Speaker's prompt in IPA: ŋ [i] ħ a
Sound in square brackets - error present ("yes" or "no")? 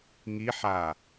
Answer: no